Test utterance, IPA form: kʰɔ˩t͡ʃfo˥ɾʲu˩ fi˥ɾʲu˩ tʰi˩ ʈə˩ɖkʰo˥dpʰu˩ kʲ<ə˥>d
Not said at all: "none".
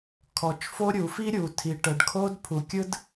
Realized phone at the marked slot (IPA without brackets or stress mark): ɯ˥